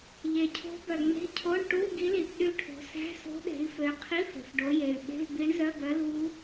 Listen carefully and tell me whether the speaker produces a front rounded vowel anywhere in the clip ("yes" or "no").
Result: yes